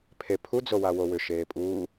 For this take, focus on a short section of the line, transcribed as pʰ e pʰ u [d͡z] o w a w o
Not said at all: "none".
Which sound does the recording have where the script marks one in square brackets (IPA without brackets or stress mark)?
d͡z